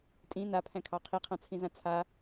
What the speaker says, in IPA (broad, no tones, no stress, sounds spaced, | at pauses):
tʼ ĩ n a pʰ æ̃ kʰ ɑ qʰ i qʰ ã t͡sʰ ĩ z ã t͡sʰ a